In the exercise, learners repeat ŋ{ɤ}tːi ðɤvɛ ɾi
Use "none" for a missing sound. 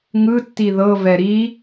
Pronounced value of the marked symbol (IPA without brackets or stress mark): ɯ